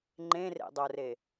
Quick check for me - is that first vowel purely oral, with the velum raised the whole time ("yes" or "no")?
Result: no